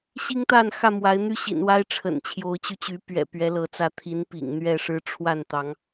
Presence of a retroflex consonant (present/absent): present